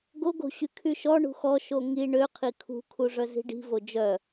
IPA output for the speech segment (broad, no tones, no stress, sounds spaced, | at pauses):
ɡ o ɡ o̤ ɕ y kʰ y ʃ ɔ ɳ ṳ x ɔ ʃ o ŋ i ɳ ø qʰ i kʰ ṳ kʰ u ʐ œ z i̤ ɖ i̤ v o d͡ʒ œ